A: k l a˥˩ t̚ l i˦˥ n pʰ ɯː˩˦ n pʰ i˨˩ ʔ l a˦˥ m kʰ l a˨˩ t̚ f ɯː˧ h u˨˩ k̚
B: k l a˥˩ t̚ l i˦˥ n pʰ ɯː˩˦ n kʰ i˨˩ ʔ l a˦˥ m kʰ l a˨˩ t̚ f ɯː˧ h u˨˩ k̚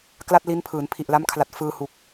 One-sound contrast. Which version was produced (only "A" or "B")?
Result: A